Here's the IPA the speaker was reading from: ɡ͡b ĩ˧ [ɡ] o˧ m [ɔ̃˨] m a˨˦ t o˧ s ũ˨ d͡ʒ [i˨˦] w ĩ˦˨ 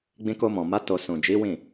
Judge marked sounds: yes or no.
no, yes, yes

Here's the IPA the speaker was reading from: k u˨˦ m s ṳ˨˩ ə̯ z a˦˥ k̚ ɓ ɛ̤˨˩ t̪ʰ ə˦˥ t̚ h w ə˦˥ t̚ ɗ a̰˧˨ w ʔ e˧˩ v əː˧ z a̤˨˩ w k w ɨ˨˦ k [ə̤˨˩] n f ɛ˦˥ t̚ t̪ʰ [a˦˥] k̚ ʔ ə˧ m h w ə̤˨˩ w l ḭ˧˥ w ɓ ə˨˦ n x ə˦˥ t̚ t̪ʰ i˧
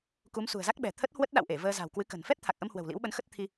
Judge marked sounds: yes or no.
yes, no

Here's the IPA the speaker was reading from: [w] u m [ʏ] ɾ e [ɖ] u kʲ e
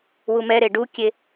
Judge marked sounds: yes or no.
yes, no, yes

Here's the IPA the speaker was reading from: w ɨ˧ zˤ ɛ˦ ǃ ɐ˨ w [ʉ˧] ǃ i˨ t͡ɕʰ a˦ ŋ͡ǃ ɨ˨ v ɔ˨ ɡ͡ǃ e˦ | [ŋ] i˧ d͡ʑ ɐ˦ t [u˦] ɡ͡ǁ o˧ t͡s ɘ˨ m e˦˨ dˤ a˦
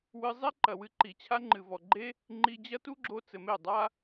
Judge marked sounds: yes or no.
no, no, yes

